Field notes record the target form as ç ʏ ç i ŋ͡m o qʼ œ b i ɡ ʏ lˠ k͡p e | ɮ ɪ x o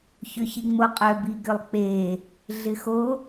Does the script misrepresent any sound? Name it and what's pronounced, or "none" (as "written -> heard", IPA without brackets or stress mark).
none